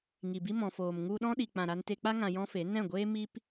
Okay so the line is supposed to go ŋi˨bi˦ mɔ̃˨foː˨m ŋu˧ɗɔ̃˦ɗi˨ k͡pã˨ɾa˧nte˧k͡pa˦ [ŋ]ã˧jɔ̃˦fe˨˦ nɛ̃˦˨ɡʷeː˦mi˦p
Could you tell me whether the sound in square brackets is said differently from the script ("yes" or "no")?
no